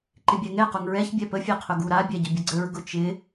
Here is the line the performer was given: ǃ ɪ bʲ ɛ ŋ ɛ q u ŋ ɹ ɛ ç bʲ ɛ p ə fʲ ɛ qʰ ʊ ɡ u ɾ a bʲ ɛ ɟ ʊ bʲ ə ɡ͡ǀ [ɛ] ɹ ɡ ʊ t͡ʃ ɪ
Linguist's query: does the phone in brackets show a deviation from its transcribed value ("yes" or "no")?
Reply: yes